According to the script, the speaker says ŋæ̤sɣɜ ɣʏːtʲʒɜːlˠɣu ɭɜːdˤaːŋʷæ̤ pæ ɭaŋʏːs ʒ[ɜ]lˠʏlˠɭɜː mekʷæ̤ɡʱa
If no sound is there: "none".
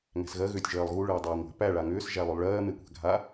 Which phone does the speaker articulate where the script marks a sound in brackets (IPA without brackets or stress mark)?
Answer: æ